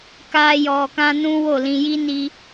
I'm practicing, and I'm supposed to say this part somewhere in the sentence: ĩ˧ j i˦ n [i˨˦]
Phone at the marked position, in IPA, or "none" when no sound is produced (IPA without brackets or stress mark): i˧